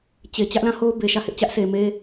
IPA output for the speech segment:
t͡ɕe˨ t͡ɕä˦ʔlã˦˨ho˦ʊ̯ be˨ʃä˦˨hɪ˦ʔ t͡ɕä˦ʔse˨me˦

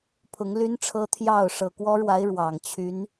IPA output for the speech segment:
pʰʊ˧˥ŋly˥nʈ͡ʂʰɤ˥ t̪ʰjɑ˥˩ʊ̯ ʂɤ˨˩kwɔ˥ɻwa˧˥ɪ̯ ɻwɑ˨˩ŋ t͡ɕʰy˧˥n

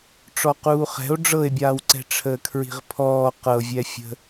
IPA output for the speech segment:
ʈ͡ʂɔquːχɛ̤o̯ ɖ͡ʐɤe̯bʲaːwǀɛ̤ ʈ͡ʂʰəːkʰɹi̤ʁpʰɔː qɤvʲɛfʲə̤

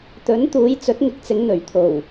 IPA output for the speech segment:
t̪ɵ˨˥nt̪uː˨˧j t͡sɵ˨˥t̚ŋɪ˨˥k̚t͡sɪ˨˧ŋ n̪ɵ˨˩ɥt̪ʰo˨˩w

